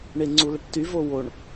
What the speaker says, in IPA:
ɳ e ŋ͡ǀ u l ə ʈ t y v o w o ɳ

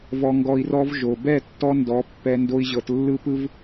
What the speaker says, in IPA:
v ɔ˧ ŋ ɡ ɔ˧ i̯ r ɔ˦ v ʒ o˨ b ɛ˦˨ tː ɔ˧ n d ɔ˨˦ pː ɛ˦ n d o˦ i̯ ʑ ɤ˧ t lː ɯ˦ p ɯ˦ v

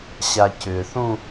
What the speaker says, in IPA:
ɕ a c ʏ θ ũ

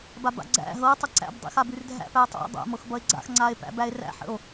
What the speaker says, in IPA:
b a b a̰ ɡ͡ǀ æ̰ ɦ ɤ tˤ ə ǀ æ̰ b dˤ ḭ x a b ʉ r dʱ æ̰ p æ tˤ a̰ dˤ a̰ m ɤ x b ʌ e̯ ɡ͡ǀ a̰ x ŋ͡ǀ a e̯ p æ̰ b æ e̯ r æ̰ ħ ə̰ o̯

